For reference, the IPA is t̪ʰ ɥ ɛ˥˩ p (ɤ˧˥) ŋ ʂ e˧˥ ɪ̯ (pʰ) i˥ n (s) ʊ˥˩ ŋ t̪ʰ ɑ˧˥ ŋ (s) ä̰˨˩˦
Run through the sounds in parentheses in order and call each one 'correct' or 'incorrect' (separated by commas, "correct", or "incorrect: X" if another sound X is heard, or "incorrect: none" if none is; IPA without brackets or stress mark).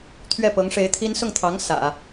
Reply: correct, incorrect: t̪ʰ, correct, correct